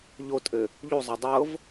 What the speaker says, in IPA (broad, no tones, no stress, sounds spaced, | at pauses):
ʎ o tʼ ɘ | ʎ u zˤ a dˤ ɤ v